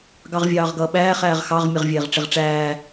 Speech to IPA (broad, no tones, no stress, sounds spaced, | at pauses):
ɡ ɑ ʁ vʲ ɑː ʁ ɡ ʌː ɓ æː χ æː ʁ x ɑ ʁ mʲ ʌ ʁ vʲ ɛː ʁ ʈ͡ʂ ɪ ʁ ʈ͡ʂ æː